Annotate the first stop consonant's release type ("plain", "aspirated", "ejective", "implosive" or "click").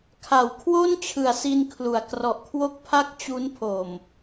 aspirated